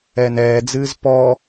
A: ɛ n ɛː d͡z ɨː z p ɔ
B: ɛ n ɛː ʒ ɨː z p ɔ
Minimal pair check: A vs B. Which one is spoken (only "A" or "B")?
A